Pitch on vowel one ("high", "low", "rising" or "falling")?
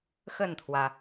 falling